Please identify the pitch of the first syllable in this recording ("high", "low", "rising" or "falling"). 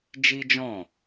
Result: high